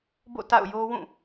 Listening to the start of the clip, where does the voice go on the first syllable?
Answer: falling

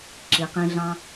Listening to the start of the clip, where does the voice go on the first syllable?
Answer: low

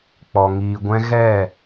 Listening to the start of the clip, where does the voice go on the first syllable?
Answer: low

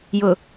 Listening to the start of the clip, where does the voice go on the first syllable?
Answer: low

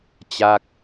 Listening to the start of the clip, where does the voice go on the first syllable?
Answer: falling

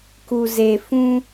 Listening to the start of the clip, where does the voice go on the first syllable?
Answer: low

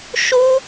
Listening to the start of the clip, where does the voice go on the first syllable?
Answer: high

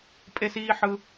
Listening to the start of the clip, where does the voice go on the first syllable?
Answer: high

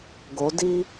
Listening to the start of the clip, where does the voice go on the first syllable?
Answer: rising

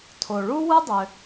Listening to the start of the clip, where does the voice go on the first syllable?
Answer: low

